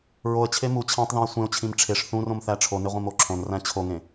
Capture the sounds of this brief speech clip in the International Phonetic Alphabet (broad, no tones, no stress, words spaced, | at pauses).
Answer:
ɹoə̯t͡ɕʰe mu t͡ɕʰæ̃tˤðẽə̯ sʷẽʊ̯t͡ɕʰĩm ʈ͡ʂʰeʂ θũrõm θæʈ͡ʂʰone ʁʷĩmoǁʰõnræ̃ t͡ɕʰoŋẽ